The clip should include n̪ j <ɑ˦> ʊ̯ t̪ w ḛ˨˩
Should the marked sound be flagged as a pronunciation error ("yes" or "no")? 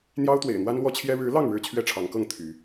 no